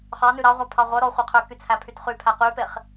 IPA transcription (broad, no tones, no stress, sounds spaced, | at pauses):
χ ɑ n ʉ ɾ ɑ ʁʷ æ pʰ ɑ ʁʷ œ ɾ ɔ χʷ ɛ qʰ ø k y t͡sʰ æ pʰ y t χ y pʰ æ q y p e χ